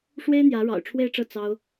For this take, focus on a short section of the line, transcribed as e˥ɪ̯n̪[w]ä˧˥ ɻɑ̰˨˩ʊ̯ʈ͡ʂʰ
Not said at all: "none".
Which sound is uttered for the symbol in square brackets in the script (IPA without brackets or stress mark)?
j